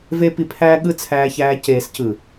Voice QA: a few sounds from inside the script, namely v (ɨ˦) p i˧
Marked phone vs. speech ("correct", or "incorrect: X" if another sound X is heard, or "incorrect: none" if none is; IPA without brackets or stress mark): incorrect: e˦